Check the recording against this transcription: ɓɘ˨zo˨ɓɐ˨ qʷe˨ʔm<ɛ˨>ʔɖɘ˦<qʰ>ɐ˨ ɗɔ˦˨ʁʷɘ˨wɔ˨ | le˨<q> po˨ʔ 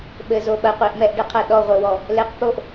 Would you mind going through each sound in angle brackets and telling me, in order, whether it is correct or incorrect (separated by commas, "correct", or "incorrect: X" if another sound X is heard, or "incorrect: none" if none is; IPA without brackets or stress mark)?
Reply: correct, correct, correct